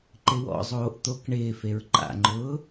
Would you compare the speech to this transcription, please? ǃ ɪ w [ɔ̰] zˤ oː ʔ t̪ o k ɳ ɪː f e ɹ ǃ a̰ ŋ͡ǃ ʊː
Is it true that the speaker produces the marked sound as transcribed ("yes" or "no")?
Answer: yes